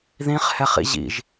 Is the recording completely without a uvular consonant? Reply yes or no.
no